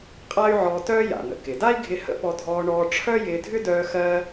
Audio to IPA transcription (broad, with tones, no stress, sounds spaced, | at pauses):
qʼ a˥ y̯ ʕ ɔː˧ t œː˥ j a̰˩ n̪ ə̰˩ k ɪ˩ d a˥ i̯ ɡʱ ɪ˧ h ə̰˥ p ɔ˧ dʱ ɔː˧ ɳ ɔː˧ ʈ͡ʂʰ œ˥ j ɪː˧ dʱ ʏ˥ d œː˧ x ɜː˧